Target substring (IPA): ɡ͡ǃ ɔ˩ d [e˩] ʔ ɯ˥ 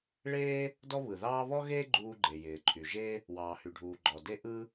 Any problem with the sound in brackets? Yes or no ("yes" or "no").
yes